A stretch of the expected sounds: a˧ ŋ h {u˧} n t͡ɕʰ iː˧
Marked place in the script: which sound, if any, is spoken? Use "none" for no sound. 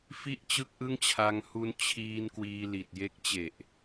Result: u˧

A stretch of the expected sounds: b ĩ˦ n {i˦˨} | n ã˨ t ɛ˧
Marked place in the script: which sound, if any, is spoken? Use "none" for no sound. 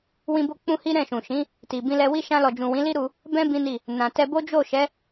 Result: i˦˨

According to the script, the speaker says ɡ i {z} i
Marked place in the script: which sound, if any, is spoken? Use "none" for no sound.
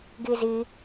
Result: z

